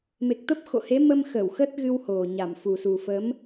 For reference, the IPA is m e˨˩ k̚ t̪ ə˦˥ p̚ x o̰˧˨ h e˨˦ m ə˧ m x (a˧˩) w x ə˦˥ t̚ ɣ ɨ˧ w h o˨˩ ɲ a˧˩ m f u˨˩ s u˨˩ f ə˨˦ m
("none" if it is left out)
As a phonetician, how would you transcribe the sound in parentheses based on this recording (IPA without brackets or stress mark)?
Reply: ə˧˩